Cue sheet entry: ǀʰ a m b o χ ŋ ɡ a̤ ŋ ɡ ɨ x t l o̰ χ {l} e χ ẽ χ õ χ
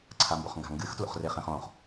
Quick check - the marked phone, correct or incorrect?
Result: incorrect: r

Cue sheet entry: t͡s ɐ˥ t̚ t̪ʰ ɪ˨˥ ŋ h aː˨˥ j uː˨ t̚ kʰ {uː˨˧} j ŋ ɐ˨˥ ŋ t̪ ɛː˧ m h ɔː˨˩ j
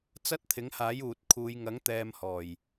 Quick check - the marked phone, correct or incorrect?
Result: correct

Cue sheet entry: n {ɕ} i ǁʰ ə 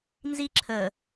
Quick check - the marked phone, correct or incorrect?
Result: incorrect: z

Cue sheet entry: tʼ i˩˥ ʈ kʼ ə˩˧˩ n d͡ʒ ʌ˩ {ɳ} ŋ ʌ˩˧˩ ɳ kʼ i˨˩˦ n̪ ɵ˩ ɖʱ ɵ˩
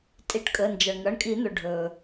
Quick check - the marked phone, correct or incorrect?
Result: correct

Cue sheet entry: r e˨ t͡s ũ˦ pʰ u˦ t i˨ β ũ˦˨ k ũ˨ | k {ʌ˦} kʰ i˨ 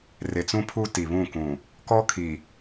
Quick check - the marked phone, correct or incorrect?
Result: incorrect: ɔ˦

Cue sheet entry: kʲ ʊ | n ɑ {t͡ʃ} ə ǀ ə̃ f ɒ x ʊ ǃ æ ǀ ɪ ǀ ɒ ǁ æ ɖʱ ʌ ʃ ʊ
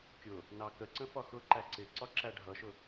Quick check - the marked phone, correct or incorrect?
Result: incorrect: k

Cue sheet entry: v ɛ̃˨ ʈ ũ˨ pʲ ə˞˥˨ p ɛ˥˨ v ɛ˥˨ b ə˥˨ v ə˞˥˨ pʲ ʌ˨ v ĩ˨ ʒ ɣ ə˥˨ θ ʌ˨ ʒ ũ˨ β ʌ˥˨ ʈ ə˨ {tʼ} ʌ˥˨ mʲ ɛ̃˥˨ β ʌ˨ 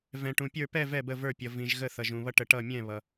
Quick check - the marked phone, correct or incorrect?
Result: incorrect: ʈ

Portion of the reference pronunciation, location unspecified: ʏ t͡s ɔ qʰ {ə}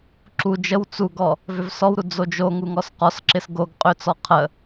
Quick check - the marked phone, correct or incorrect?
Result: correct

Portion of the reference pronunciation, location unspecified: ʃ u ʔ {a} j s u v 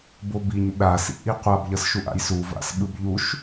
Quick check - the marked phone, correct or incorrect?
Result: incorrect: a̰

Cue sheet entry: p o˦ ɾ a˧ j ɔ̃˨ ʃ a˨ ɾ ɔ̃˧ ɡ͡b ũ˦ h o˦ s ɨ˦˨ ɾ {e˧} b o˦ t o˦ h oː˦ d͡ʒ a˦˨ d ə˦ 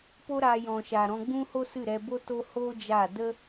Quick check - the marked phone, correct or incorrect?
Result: incorrect: ɛ˧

